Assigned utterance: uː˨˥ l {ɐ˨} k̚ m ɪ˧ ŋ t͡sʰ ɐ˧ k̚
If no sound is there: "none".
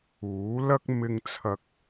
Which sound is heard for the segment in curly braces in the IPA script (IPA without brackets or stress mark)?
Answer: ɐ˥